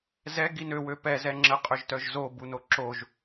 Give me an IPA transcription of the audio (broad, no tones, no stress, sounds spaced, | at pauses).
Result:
z ɛ ɡ i n ø w ø p ɛ z ɛ ŋ͡ǁ ə qʼ ø ʒ t œ ʒ z o b u n o ǁ o ʒ